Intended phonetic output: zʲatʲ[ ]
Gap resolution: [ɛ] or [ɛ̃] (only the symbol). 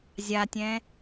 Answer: ɛ̃